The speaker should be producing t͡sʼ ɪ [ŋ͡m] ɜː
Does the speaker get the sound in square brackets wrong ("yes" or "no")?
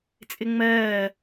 no